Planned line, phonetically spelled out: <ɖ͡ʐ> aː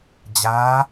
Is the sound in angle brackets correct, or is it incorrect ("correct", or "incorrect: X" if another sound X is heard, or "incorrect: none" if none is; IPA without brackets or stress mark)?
incorrect: d͡ʑ